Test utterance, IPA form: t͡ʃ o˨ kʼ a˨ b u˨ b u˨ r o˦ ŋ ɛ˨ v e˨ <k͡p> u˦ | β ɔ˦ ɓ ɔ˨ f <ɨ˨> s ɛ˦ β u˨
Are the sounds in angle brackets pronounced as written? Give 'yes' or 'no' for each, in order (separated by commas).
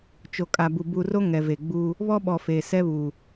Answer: no, no